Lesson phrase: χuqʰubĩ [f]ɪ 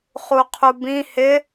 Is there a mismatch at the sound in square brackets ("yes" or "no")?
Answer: yes